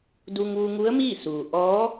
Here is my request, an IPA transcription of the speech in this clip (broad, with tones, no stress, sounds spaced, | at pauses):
d u˧ ŋ ʋ u˧ ŋ u˧˥ ə̯ m iː˥˨ s uː˩ ʔ ɔː˧˥